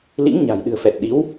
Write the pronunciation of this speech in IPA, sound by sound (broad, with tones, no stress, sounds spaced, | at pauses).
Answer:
l ḭ˧˥ ŋ ɲ a̤˨˩ j ɗ ɨ̤˨˩ ə̯ f ɛ˨˩ t̚ ɗ i˨˦ w